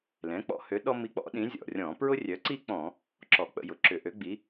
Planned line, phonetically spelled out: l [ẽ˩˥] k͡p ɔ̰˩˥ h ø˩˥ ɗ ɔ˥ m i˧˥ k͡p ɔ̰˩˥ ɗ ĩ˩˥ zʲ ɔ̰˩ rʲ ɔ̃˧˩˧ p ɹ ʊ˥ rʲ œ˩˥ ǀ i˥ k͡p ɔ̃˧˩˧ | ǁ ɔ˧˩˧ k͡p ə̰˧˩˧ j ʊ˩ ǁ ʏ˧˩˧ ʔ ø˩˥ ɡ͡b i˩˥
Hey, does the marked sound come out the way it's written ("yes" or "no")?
no